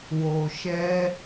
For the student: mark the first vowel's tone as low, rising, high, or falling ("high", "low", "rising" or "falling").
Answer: low